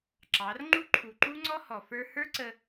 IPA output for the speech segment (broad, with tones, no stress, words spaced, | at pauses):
ǁɑ˨˦r ŋ͡ǃu˦ǃʰu˨ǃu˦ ŋ͡ǀɔ˦hɔ˨ fə˞˧hə˞˦ǀə˧